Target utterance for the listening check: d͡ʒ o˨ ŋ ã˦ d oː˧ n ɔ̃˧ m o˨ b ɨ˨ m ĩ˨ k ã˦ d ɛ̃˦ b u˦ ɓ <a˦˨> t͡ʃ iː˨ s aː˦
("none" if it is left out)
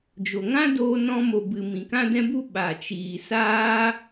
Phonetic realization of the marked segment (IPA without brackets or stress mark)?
a˨